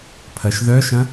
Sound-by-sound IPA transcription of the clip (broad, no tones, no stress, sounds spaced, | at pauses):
pʰ ɐ ʃ ð œ ʃ ɐ̃